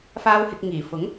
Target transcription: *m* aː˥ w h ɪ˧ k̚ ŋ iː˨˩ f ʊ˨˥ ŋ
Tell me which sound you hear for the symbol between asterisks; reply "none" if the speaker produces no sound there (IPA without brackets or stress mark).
f